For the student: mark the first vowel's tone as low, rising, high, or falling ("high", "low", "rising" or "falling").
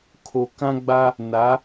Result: low